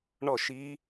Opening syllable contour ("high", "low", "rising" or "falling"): falling